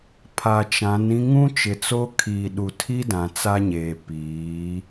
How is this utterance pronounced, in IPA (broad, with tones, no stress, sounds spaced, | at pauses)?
pʰ a˨ t͡ʃ ã˨˦ n ĩ˦ ŋ ũ˦ t͡ʃ ɪ˨ t͡s o˦ kʰ iː˨ ɗ u˨ tʰ i˦ d ã˨ t͡s a˦ ɲ eː˨ p iː˨˦